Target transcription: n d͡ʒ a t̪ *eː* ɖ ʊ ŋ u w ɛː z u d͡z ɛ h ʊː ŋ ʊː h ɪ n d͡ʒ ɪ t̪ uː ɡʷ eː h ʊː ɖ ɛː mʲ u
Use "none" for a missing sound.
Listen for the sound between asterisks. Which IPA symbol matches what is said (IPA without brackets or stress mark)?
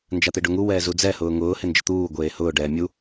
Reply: e